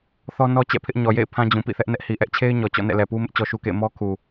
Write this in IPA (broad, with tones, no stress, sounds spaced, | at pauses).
θ ɔ˦ n ɔ˦ t͡ɕ ɛ̰˦˨ pʰ ɪ˦ ʔ ɲ ɔ˨ j ḛ˦˨ ɪ̯ pʰ ã˦ d͡ʑ ũ˨ p ḭ˦˨ θ ɛ˦ ʔ n ɛ˦ ʔ h i˨ ʔ ɛ˦ ʔ t͡ɕʰ e˦ ɪ̯ ɲ ɔ˨ t͡ɕ ɔ̰˦˨ n ɛ̰˦˨ l ɛ˨ p u˦ m ɪ˦ ʔ t͡ɕ ɔ˦ ʃ u˦ k ḛ˦˨ ɪ̯ m ɔ˦ kʰ u˨